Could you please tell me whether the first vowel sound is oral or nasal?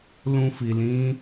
nasal